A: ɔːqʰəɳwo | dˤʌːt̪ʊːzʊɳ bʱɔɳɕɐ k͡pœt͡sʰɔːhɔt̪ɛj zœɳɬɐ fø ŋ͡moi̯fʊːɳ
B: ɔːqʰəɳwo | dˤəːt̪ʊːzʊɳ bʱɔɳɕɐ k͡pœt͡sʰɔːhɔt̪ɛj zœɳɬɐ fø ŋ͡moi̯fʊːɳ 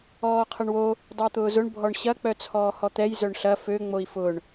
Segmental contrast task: B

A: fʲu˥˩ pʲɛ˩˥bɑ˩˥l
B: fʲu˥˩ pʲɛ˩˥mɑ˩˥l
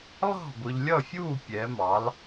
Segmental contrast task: B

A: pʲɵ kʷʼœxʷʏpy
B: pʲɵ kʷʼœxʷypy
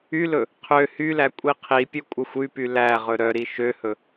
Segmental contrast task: B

